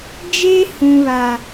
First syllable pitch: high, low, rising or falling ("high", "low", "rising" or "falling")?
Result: high